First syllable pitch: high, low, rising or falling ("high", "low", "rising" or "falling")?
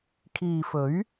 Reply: low